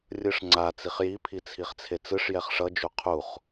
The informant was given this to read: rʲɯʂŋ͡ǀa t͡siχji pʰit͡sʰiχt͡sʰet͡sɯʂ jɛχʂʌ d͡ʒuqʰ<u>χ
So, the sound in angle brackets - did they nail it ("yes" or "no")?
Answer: yes